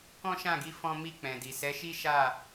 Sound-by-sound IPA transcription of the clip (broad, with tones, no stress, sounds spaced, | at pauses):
k ɔ̃˦ ʃ ã˦˨ ɡ i˧ f ɔ̃˦ m i˧ k͡p ɛ̃˨ d i˨ s ɛ˨˦ ʃ i˦ ʃ a˦˨